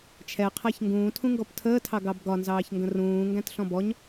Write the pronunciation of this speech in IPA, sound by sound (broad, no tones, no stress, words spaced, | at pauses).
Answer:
t͡ʃʰɛqʰæç ŋɡũːtʰũŋɡɔp tʰəːtʰɑ ɡɑbɡɒnzɑːçŋɡə̃ rũː ŋɡæ̃tɬɔ̃bɔɲ